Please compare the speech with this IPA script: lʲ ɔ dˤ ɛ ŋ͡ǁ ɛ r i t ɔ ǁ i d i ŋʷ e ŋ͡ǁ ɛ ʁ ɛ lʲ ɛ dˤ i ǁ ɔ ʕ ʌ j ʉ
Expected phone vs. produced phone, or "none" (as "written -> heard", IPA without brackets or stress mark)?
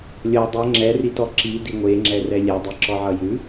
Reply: ʁ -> r